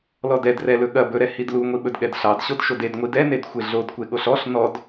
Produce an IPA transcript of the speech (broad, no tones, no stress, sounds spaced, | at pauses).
l ɔ d ɛ d r ɛ l ɵ ɠ ɐ b ɵ ɾ ɛ h i d l u ŋʷ i ɓ ɵ d ɠ ɛ d ɬ ɑ d ɕ o d ʃ o d e d ŋʷ i d ɛ n e d xʷ e ɮ o d kʷ e ɠ o ɬ ɔ ɬ n ɔ d